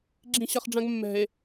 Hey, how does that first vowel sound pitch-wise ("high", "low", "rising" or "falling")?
low